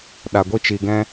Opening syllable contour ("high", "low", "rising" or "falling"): low